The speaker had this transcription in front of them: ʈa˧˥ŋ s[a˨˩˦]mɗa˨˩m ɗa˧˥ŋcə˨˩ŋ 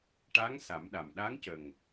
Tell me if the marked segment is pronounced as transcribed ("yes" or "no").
yes